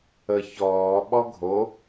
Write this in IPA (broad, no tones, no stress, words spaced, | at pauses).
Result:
ə çɔː ɓɔɡʱo